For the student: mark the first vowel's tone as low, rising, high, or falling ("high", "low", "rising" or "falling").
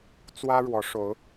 high